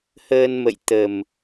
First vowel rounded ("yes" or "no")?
no